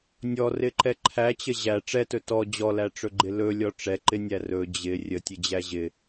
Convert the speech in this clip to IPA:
nʲ ɔ r ɪ ǃ ɛ ǃʰ æ t͡ɕ ə ʑ æ ʈ͡ʂ ɛ t ɵ t ɔ d͡ʑ ɔ l æ ʈ͡ʂ ɵ ɡ͡ǃ ɪ l ɵ lʲ ɔ ʈ͡ʂ ɛ ǃ ɪ nʲ æ r ɵ d͡ʑ ɪ rʲ ə tʲ ə d͡ʑ æ ʑ ɪ

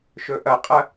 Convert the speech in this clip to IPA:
ʃ ɵ ʔ ɐ qʼ ɐ

